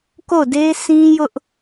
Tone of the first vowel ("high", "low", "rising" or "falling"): falling